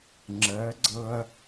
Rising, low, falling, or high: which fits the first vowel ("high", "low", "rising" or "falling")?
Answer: rising